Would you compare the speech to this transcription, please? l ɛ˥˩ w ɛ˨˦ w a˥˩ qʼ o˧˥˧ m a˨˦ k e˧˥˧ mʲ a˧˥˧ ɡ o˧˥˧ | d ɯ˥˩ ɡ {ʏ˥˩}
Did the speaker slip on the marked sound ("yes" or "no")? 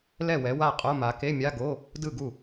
yes